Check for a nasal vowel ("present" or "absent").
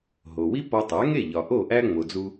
absent